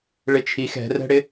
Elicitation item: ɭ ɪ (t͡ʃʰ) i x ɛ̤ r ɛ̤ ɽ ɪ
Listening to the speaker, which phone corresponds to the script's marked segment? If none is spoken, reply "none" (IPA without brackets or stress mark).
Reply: t͡ʃʰ